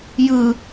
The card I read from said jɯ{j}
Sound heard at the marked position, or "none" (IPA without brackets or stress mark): none